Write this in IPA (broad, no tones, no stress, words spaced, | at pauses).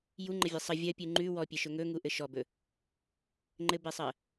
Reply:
juŋ͡ǃəvʲɘ sˤə vʲɜpʲʉ ŋ͡ǃʉ wɔpʲeʃɵ ŋɵŋuʔɘ ʃɔbɵ | ŋ͡ǃɘbesˤɜ